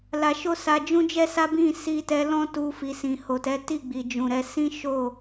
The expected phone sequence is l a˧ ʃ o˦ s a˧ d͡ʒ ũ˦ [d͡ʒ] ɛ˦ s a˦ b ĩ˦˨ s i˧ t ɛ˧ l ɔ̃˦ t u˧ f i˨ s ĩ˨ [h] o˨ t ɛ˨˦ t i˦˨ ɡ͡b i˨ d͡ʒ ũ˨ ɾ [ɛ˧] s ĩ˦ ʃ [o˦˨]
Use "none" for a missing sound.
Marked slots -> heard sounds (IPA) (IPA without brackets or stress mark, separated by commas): d͡ʒ, h, ɛ˧, o˦˨